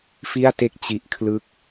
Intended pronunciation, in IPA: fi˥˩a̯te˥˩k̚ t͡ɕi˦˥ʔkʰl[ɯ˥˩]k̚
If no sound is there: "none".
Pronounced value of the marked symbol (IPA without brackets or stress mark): ɯ˥˩